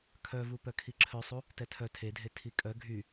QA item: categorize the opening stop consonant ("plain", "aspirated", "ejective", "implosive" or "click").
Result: aspirated